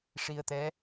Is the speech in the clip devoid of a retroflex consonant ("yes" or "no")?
no